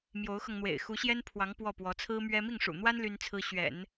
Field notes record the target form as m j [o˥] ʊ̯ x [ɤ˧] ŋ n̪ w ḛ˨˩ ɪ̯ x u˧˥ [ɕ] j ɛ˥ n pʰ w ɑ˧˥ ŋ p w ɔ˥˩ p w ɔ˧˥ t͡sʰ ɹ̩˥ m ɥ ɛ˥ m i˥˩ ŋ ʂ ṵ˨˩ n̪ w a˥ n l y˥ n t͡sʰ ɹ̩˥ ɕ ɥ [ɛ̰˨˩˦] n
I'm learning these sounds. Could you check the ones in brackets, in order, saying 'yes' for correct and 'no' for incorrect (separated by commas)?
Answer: no, yes, yes, yes